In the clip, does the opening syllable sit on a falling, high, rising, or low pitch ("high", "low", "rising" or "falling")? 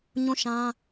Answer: falling